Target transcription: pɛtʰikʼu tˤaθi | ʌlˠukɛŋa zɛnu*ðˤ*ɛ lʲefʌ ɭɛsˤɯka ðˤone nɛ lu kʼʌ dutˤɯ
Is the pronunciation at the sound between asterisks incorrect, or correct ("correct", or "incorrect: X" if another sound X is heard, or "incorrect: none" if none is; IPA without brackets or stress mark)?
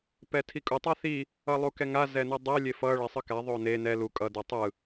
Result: incorrect: dˤ